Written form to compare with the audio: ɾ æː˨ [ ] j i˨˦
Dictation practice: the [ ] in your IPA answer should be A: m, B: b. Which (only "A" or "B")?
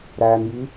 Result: A